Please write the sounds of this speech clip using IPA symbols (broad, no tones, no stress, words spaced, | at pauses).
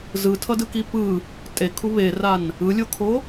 zɯtʰʌdɯki pɯ | tʼekʰu βeran | ɯlʲokʰo